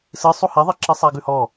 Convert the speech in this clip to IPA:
s ɨ sˤ u h e ðˤ i ǁ i sˤ æ ɡ ʉ h ɔ

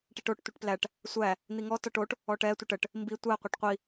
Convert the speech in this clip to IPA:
ʈ i ʈ o ʈ tʷ i ʈ p l æ ʈ | sʷ æ | n̪ i ŋ ɔ t ɔ ʈ o ʈ | ɔ ʈ ɛ tʷ ə ʈ ə ʈ | m b i tʷ æ qʷ ɛ ʈ qʷ i

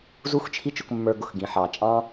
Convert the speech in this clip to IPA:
z u˦ x t͡ʃʰ i˦ t͡ʃ ʊ˧ k mː ə˞˧ ɡ ʊ˨ x ɡ ĩ˨ ħ ɑ˨ t͡ʃʼ ɑ̃˦

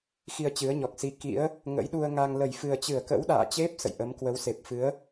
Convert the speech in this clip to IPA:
x i˧ ə̯ t͡ɕ ɨ˨˦ ə̯ ɲ ɔ˨˩ k̚ s i˨˦ k ḭ˧˥ ə̯ | ŋ ə̰˧˥ j ɗ u˧ ə̯ ŋ a˧ ŋ l ə˧˩ j f ɨ˨˩ ə̯ t͡ɕ ɨ˧˩ ə̯ k ə̰˧˥ w ɗ a̰ː˧˨ t͡ɕ e˦˥ p̚ s ə̰˧˨ j ʔ ə˨˦ m k w ə˨˦ w s e˨˩ p̚ f ɨ˨˦ ə̯

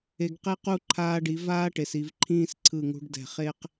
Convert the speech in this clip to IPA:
e˧ ɡ q e˥ q u˥˧ ǃʰ aː˧ ɖ i˩˧ v aː˥ ʈ e˩˧ s i˩˧ v ǃʰ ĩː˥˧ s ǀʰ ɯ˧˩ ŋ ṳ˧ ɖ d ɛ̤˧˩ χ e˥ q

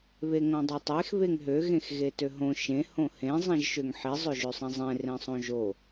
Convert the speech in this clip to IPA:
β e ŋ õ dˤ ø tˤ e x β e ŋ ɦ ø ɣ ẽ x ɣ e t ø ɦ õ ʃ ẽ h õ h ẽ zˤ ĩ ʒ ʃ ø ŋ ħ i zˤ ø ʒ ø sˤ ĩ zˤ ẽ r ẽ sˤ õ ʒ o

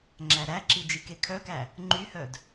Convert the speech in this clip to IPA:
ŋ͡ǁ æ ɾ æ ǁ i d͡ʒ i k e kʰ œ k æ | ŋ͡ǃ y h œ d

